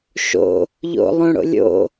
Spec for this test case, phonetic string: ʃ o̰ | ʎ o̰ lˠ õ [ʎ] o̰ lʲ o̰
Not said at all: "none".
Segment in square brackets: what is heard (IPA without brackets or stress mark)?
ɽ